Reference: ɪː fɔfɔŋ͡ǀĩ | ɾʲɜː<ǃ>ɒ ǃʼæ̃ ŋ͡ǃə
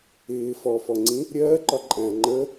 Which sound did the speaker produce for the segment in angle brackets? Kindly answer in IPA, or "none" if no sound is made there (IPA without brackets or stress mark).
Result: ǃ